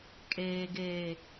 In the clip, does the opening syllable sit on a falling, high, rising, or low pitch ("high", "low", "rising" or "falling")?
low